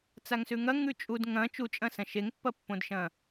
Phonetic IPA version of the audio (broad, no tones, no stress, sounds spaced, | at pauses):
t͡s a ŋ s ʉ ŋ ɐ ŋ ʉ t͡ʃʼ u d ŋ ɐ̃ t͡ʃ u t͡ʃʼ ɐ̃ s ɐ̃ ʃ e ŋ pː ɐ pː õ d ʃ ɐ̃